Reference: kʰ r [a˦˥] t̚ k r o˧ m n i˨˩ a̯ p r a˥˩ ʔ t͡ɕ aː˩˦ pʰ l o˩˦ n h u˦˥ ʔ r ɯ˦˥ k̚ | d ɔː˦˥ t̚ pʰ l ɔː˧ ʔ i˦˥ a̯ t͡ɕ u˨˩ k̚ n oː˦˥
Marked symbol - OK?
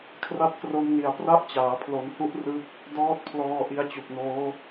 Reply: yes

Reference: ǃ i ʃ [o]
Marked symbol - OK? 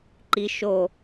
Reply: yes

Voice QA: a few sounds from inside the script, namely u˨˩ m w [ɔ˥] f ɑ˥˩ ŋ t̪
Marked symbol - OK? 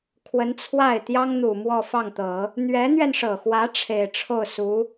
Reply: no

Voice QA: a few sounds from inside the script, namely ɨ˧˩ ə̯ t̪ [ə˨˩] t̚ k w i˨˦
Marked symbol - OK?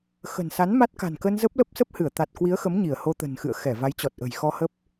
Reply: no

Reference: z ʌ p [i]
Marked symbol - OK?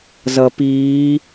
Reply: no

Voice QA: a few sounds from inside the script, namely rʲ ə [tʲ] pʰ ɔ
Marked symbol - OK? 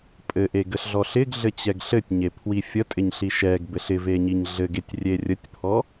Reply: yes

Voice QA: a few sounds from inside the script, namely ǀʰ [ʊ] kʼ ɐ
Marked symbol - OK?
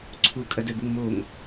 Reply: no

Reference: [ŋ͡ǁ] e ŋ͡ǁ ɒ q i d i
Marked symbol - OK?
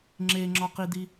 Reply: yes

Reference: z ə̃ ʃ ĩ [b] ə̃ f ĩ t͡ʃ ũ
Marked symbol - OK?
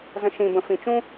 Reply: yes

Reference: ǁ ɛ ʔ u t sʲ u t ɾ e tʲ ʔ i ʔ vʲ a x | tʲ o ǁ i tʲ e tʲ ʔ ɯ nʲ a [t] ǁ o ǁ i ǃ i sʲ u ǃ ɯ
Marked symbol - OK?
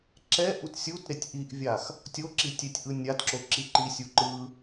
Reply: yes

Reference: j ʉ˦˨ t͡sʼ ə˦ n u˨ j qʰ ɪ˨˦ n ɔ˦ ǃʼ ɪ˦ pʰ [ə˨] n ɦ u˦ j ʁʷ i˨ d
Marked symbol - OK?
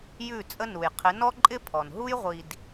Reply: no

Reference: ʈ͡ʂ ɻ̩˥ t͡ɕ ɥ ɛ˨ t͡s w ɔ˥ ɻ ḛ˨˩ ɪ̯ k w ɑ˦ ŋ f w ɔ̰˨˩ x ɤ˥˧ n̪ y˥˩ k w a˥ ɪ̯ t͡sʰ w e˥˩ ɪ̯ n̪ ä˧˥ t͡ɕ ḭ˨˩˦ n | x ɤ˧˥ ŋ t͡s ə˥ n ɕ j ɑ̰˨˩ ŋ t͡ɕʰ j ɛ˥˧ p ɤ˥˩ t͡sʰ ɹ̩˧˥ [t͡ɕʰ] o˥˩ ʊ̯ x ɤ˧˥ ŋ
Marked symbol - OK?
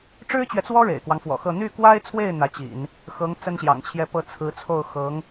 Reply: no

